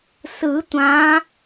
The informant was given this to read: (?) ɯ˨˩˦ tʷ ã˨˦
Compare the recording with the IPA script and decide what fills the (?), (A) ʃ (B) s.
B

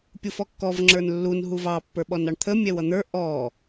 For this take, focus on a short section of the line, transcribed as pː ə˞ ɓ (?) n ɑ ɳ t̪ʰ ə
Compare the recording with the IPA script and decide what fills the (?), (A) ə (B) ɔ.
B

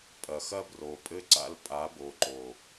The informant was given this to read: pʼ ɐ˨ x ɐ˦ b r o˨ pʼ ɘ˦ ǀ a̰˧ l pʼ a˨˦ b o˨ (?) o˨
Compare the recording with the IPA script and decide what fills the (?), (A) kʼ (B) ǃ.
B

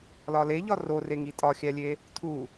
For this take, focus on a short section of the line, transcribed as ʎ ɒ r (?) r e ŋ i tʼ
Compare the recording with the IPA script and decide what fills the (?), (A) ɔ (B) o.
B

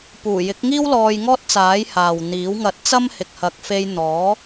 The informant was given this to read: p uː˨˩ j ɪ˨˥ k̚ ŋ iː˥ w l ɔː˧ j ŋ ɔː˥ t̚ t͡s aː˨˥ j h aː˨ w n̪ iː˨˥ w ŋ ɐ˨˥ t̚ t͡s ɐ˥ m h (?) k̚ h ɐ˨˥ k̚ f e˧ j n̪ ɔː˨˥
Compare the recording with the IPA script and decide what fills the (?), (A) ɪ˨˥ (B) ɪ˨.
B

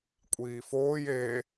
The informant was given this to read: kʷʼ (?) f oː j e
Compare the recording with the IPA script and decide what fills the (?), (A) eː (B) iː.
B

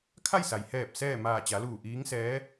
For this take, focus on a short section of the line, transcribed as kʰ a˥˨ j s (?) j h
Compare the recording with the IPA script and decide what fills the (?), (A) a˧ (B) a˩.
B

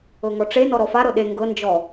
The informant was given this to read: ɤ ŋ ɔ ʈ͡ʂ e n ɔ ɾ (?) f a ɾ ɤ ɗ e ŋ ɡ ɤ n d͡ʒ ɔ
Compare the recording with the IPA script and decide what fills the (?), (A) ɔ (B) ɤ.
A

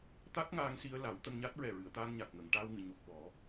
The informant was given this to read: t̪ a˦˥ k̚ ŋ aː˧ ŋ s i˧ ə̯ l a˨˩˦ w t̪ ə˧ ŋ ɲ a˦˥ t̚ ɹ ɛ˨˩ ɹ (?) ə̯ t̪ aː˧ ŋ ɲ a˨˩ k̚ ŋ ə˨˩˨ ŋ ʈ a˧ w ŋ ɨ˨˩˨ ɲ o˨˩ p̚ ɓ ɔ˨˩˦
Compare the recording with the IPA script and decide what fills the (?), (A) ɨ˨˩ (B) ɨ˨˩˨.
B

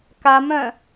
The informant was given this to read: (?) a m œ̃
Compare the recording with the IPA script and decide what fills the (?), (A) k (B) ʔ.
A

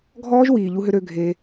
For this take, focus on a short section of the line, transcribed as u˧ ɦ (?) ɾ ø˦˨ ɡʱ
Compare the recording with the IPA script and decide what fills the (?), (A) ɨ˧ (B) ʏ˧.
B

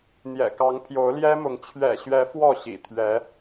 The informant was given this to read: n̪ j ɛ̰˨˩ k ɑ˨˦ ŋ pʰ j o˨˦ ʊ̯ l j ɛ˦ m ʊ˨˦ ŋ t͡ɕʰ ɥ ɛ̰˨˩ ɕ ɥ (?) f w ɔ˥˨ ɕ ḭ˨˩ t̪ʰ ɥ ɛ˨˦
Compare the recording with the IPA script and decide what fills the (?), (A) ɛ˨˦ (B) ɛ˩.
A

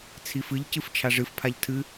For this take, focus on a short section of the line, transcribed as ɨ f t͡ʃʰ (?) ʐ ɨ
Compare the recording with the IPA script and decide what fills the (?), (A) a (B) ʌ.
A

